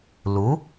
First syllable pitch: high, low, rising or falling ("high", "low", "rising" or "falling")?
rising